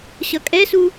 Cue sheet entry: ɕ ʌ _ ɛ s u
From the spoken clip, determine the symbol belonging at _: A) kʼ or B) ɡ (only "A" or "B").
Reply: A